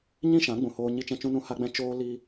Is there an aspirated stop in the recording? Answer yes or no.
no